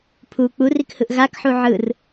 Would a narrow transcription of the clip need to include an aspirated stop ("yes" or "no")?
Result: yes